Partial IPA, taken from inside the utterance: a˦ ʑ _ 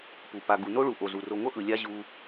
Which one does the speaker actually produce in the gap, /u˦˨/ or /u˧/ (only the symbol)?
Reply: u˧